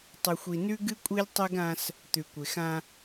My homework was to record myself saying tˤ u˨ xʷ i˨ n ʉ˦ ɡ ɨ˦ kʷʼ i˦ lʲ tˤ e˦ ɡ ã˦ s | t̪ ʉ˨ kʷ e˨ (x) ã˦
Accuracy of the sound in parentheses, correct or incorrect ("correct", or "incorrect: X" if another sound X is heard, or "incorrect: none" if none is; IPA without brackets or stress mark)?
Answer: correct